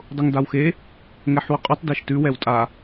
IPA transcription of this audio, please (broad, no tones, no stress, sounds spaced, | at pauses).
dˤ ʊ ŋ d a w x e | ŋ ɛ ħ w ʊ qʼ ʉ tˤ d e ʃ t ʉ w ɛ w tʼ a